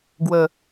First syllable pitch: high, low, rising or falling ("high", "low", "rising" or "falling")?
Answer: low